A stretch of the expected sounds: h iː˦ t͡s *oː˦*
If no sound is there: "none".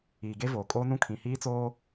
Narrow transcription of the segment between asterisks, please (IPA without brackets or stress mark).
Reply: oː˦